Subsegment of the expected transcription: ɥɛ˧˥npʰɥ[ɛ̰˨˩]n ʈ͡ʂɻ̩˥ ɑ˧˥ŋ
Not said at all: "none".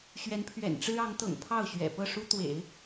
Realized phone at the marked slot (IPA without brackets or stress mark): ɛ̰˨˩